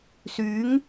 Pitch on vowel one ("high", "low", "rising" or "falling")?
rising